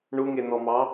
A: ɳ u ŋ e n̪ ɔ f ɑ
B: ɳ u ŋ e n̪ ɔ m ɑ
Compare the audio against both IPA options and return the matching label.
B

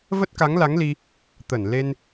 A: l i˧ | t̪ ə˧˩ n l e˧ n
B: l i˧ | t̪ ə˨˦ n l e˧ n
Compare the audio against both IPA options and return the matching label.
A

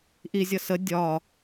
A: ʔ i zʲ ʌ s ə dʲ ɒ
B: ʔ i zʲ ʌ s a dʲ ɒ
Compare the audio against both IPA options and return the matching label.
A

